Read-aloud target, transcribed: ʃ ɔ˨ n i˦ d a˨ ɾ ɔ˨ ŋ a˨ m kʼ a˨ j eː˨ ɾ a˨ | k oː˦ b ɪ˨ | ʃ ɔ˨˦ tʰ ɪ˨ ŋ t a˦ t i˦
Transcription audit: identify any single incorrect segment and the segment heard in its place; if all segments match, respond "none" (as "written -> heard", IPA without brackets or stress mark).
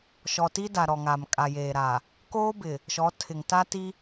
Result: n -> t